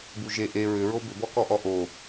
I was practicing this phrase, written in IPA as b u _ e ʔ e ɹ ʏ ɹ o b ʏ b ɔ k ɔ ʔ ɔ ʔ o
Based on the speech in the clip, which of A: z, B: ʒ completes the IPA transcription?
B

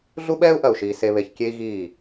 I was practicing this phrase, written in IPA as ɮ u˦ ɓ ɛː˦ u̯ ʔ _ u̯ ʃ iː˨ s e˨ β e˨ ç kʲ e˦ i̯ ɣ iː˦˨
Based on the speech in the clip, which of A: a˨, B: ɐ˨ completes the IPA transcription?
B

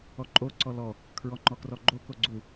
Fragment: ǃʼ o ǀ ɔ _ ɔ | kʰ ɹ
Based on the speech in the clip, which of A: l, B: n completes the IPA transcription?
A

